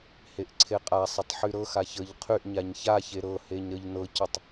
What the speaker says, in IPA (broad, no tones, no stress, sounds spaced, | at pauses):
h e ʔ ǀʰ e qʼ a sˤ ə tˤ ħ y ɾ ɤ x a ç ə ʎ qʰ y ʔ ɲ a ɲ ç a ç e ɾ ɤ h e ɲ ɾ ə ʎ n ɤ c ə tˤ